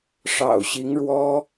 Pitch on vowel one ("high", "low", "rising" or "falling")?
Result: low